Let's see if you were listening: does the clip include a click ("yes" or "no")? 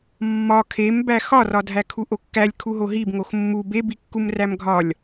no